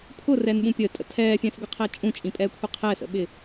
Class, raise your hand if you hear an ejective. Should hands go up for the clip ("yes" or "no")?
yes